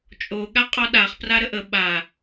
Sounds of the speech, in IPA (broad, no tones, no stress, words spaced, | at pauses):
t͡ʃʼo ɠaqʼɔɗaχ praɾəʔə ɓa